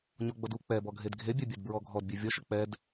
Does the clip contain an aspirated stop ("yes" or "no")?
no